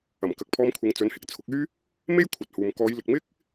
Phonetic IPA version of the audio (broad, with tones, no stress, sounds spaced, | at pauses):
ɐ˨˩ m k ɐ˨ k̚ pʰ ɔː˧ m kʷʰ ɪ˨˧ ŋ t͡s ɵ˨˥ n h ɪ˨˥ k̚ t͡sʰ ʊ˨˥ k̚ yː˥ | m e˥ j kʷʰ ɐ˨ t̚ h uː˨ m k ɔː˨˧ j l ɪ˨ k̚ m ɪ˥ k̚